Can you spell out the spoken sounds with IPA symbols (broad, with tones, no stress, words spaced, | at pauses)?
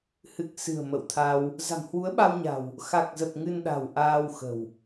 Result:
hɨ˨˩k̚ sɨ̤˨˩ə̯ mə̰˧˨wt̪ʰa˧w | za̤˨˩mhwu˨˦ə̯ɓa˧wɲa̤˨˩w | xa˨˩k̚zə˨˩p̚ ŋɨ˧nɗa̤˨˩w ʔaː˧wxə̤˨˩w